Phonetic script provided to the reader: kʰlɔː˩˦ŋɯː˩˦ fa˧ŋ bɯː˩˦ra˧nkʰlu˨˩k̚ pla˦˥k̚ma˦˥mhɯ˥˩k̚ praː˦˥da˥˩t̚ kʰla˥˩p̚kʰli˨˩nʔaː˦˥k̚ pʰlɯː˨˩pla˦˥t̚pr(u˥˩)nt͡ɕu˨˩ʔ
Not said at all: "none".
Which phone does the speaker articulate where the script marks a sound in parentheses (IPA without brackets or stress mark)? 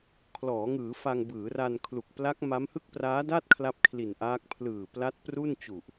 u˥˩